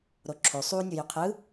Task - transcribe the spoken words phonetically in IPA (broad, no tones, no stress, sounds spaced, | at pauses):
ɾ o ǁʰ o sˤ u nʲ u j y qʰ ɯ